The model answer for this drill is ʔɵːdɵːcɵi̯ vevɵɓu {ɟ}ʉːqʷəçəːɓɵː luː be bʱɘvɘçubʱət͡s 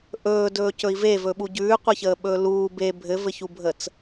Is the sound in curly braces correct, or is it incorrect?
correct